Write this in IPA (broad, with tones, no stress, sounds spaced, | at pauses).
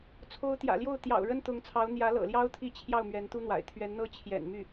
t͡sʰ o˧˥ ʊ̯ t̪ j ä̰˨˩ l j o˥˩ ʊ̯ t̪ j ɑ̰˨˩ ʊ̯ ɻ ə˥ n t̪ ʊ˧˥ ŋ t͡sʰ ɑ˧˥ ʊ̯ n̪ j ä˧˥ l ɤ̰˨˩ l j ɑ˥ ʊ̯ t̪ʰ i˥˧ t͡ɕʰ j ɑ˥˩ ʊ̯ m ɥ ɛ˧˥ n t̪ u˥ n̪ w a̰˨˩ ɪ̯ t̪ʰ ɥ ɛ˧˥ n n̪ ɤ˥ t͡ɕʰ j ɛ̰˨˩ n m y˥˩